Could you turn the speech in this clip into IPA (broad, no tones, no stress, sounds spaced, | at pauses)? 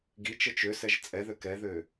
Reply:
ɡ i t͡ʃ ə t͡ʃ ø s ɛ ʒ t͡sʼ ɛ ð ø k ɛ ð ø